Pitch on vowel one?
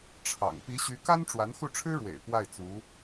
low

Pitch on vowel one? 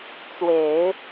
low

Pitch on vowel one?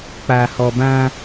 low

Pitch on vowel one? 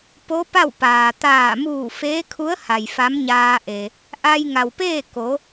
rising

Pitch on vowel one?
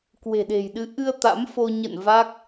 low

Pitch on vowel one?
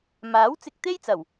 rising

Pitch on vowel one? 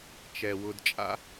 low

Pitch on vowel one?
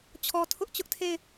low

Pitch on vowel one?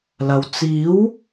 low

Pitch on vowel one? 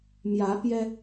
rising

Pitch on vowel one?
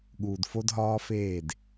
low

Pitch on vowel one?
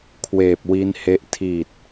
low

